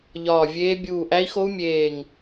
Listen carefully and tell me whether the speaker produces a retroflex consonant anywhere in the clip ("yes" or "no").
no